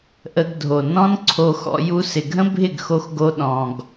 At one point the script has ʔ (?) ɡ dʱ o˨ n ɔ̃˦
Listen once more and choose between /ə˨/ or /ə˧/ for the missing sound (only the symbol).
ə˧